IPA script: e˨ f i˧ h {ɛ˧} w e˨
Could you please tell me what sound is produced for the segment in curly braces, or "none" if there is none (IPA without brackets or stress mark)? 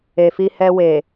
ɛ˧